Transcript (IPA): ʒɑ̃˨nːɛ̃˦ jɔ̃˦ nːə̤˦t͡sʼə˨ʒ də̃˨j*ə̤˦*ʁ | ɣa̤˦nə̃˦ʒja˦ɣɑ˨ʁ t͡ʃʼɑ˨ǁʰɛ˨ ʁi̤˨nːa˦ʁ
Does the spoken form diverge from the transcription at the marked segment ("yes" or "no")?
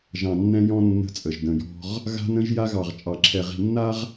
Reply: yes